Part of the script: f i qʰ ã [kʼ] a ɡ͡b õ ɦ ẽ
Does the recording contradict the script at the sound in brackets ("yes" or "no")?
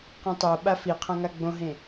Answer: yes